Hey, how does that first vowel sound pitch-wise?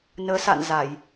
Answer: rising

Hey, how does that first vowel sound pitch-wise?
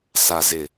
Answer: low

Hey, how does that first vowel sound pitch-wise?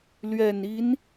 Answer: low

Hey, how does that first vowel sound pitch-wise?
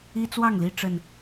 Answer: high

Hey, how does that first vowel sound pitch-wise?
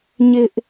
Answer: high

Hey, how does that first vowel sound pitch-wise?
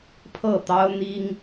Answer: falling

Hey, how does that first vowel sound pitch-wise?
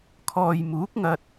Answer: low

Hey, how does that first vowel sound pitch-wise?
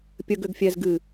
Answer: low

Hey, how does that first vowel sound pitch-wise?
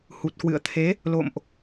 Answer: low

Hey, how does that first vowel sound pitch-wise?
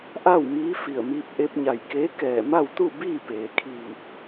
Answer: falling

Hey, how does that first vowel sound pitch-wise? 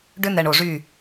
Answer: high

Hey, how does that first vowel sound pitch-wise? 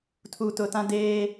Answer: low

